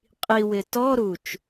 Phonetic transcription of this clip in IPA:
qʼiwɪ tɔɾut͡ʃ

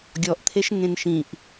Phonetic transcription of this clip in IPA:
ɡʲɔʔt̪ʰeʃŋẽn ʃĩʔ

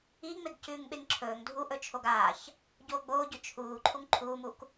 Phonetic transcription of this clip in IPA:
iŋ͡meɡ cʉːŋɓeŋǁʰɵːŋ dʱu ʔɵt͡ʃʰoɡaːç | ɟoːɡ͡boːɟɵ t͡ʃʰuː ǃʰuŋǃʰuːmuk

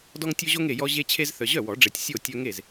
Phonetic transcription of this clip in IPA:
dɔ˦ŋtʲo˦ʑo˦ŋ e˨jɔ˦ʑe˦t͡ɕʰe˦z θœ˨ʑœ˥˩wɔ˨˩˦ɖ͡ʐe˨tʲ sʲo˥˩ tʲœ˦ŋe˥˩z

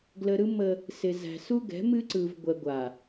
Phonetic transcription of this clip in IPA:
ɡlə˨ɾɯ˦ mə˦ | sɪ˨zæ̤˨ su˦ɡɛ̤˨˦ mɨ˦ǀɯ˨vɡʷɛ˨ ɡʷa˨

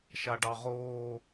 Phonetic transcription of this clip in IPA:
ʃaɖɑʁoː

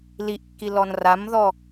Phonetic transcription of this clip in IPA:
liʔkːi lɔnramðɔ

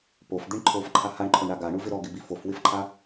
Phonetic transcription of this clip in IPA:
pofd̪iɳ ǃʰofǃʰa haɳǃʰoɳɾa ɡaɳuvɪ ɾɔɡɪbi fofwɪfǃʰa

